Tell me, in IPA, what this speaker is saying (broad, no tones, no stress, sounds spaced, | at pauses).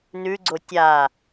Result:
n ʉ ɡ͡ǀ o tʲ a